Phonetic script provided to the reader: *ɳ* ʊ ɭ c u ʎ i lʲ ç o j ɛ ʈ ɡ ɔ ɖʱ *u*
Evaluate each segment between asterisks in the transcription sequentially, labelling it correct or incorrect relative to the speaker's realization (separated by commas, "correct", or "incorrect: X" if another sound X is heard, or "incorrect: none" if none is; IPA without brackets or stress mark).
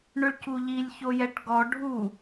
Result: correct, correct